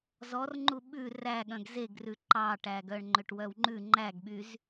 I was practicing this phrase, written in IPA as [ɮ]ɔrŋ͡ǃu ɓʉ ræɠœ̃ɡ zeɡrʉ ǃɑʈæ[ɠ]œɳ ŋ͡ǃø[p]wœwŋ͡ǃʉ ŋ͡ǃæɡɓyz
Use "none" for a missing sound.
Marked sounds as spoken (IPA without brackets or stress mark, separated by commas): z, ɡ, ʈ